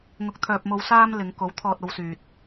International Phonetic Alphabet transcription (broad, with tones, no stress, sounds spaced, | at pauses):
ŋ ʊ˧ k̚ t̪ʰ œː˧ p̚ m o˧ w s aː˧ m l ɪ˨˧ ŋ k o˨˥ w t̪ʰ ɔː˧ t̚ o˧ w s yː˨ t̚